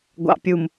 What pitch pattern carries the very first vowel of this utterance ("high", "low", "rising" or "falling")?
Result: low